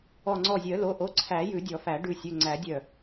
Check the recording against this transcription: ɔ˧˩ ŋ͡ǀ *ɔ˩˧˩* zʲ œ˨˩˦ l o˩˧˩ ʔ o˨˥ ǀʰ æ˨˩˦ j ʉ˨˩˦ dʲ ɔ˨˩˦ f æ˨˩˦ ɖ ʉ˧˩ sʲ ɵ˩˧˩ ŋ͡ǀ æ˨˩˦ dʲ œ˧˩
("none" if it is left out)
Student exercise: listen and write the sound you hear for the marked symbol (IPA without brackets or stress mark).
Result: ɔ˧˩